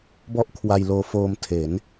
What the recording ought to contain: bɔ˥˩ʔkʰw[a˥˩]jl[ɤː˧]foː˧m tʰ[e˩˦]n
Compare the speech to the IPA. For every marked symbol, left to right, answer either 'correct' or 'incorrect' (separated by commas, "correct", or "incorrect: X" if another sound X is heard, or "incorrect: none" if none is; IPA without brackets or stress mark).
incorrect: a˧, incorrect: oː˧, correct